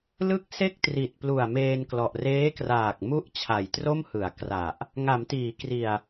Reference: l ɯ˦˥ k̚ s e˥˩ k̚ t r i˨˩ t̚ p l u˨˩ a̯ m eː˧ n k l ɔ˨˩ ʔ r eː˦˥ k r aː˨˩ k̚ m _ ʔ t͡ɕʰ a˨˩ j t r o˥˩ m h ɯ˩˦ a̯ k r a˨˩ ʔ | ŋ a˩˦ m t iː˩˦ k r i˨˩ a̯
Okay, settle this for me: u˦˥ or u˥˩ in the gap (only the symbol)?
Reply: u˥˩